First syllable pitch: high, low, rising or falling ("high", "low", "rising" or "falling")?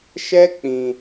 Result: high